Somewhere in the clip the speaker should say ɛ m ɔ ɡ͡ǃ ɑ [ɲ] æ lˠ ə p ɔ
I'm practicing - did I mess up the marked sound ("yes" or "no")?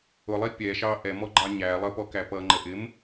no